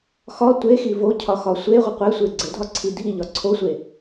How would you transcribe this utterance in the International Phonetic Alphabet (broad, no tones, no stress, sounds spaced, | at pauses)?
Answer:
x ɒ tʷ e x i v o cʰ ɒ x ɒ sʷ e ʁʷ ɪ qʷ e sʷ e ɡ͡ǀ ɘ dʱ ɒ ǀʰ i dʱ i ʎ ɒ ǀʰ o sʷ e